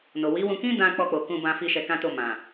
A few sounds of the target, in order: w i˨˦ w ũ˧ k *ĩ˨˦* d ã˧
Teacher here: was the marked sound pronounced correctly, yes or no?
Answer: no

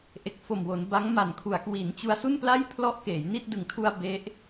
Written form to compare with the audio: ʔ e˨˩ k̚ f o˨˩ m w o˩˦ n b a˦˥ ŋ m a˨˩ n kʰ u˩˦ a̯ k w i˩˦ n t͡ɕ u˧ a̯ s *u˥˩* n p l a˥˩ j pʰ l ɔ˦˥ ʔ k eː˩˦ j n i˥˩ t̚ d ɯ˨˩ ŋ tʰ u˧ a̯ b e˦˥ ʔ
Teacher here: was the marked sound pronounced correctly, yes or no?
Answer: yes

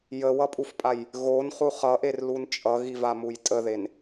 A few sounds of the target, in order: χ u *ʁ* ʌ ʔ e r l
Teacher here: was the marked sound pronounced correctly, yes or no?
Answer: no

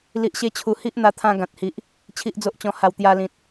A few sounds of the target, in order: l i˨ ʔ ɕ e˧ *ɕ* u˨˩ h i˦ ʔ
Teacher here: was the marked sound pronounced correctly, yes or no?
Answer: no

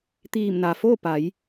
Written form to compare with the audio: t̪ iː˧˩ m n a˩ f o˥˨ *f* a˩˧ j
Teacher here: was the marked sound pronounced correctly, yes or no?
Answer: no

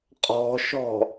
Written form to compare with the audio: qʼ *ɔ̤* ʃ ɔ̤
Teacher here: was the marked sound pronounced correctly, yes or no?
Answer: yes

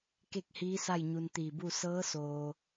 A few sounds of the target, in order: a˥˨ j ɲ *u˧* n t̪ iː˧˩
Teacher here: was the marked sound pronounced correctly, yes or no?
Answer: yes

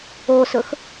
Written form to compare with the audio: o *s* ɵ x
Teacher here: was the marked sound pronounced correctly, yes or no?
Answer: yes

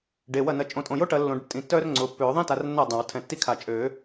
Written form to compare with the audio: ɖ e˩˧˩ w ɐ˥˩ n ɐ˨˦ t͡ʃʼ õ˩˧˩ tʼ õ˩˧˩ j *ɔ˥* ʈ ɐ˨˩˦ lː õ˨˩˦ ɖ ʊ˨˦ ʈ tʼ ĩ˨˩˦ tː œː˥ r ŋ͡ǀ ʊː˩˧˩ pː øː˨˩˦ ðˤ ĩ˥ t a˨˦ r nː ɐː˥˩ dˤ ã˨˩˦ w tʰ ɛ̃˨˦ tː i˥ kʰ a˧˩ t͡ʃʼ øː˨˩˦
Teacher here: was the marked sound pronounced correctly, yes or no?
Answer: no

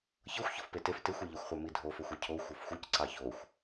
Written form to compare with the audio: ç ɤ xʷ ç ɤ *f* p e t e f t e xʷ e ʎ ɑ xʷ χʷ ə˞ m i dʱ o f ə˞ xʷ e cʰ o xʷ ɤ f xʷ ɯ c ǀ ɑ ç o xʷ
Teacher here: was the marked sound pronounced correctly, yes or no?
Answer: yes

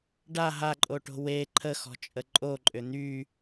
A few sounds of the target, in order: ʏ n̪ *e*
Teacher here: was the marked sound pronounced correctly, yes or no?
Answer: no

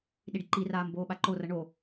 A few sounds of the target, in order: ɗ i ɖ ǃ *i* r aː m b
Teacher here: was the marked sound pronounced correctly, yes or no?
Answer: yes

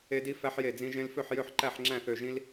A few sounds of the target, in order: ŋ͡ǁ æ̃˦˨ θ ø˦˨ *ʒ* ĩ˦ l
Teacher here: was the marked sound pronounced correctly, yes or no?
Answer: yes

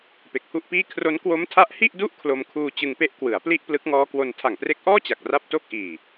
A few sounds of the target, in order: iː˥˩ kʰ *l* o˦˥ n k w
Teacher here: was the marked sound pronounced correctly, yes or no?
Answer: no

